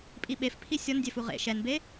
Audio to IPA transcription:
pʼ i ɓ e f pʰ i sʲ ɔ n dʲ ɛ f u ʁ ḛ ʃ ɛ n b e

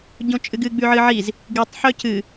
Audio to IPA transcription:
ɟ õ t͡ʃʼ ɨ ɡ ɨ ɡ͡b ʉ ʕ ɨ ʕ i z | ɡ ɨ tˤ ħ ɵ c ɨ

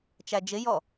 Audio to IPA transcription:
t͡ʃ æ d͡ʒ ɪ j ɔ

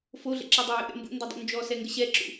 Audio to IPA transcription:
f o ɮ ɛ̰ ǁ ɔ dˤ ø j ṵ ɗ ɛ̰ m b ṵ n d ø dˤ ṵ n d͡ʒ ɔ s ɛ ŋ ɡ ə ɕ ɛ ǁ ṵ

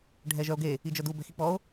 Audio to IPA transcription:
ɖʱ ɛ ʒ œ o̯ ɡ e | i d͡ʒ œ d u b ɛ̤ x i k͡p ɔ o̯

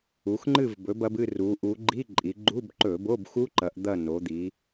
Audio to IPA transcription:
u˩˧ x ŋ͡ǃ ɨ˦˨ v b ɵ˩˧ b ɐ˩˧ b ɨ˦˨ r u˩˧ ʔ u˩˧ ɡ͡ǃ i˧˥˧ ǃʼ i˩˧ ɡ͡ǃ u˧˥˧ b ǃ ɵ˧˩˧ b o˧˥˧ b x u˦˥ ǃ ɐ˩˧ ʔ d̪ ɐ˦˨ n o˩˧ d̪ i˩˧

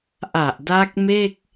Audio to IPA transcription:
ʔ a˨˩ ʔ d a˦˥ k̚ m e˥˩ k̚

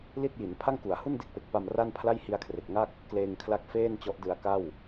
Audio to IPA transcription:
l i˥˩ t̚ j i˩˦ n pʰ a˥˩ ŋ k u˩˦ a̯ h u˥˩ n d e˥˩ k̚ p e˨˩ k̚ p a˧ m r a˥˩ n pʰ l a˥˩ j h i˧ a̯ kʰ r e˨˩ k̚ ŋ a˥˩ k̚ | k l eː˧ ŋ kʰ l a˦˥ k̚ f eː˥˩ n t͡ɕ ɔ˦˥ ʔ d ɯ˧ a̯ k a˥˩ w

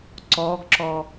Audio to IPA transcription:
ǀ ɔ ɡ ǁ ɔ

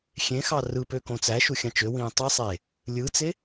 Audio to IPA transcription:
xʲ ẽ x ɑ r ɯ p ø k õ t͡s æ ʃ u xʲ ɑ̃ t͡ʃ ø w ĩː tˤ i sˤ e | lʲ ɯ t͡s e

